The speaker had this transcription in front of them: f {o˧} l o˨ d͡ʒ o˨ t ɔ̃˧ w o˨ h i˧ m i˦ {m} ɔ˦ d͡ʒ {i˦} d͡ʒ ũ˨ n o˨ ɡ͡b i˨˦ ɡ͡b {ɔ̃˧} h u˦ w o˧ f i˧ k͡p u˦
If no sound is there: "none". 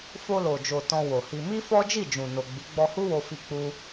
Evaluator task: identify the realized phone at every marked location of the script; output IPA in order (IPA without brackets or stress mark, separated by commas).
o˧, f, i˦˨, ɔ˧